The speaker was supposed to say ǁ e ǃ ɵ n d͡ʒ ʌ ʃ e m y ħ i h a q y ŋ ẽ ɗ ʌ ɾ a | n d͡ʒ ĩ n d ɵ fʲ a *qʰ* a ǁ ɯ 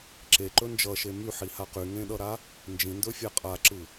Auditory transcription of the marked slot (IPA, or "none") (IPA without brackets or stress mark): qʼ